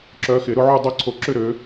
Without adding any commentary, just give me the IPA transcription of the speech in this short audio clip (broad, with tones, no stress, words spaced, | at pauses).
ǁœ˨˦xɪ˨˩˦ ɾʊ˦ʕu˥˨dˤo˦ ǀʰo˨˩˦ǁʏ˥˨ɾø˨˦